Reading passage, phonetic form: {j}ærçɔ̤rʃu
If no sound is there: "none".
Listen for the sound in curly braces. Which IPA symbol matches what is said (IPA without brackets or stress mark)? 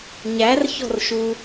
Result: ɲ